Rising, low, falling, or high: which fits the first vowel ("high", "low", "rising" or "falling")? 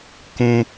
high